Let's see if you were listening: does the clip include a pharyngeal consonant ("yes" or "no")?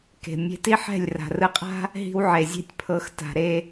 yes